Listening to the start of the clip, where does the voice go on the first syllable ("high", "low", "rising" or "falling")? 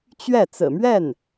falling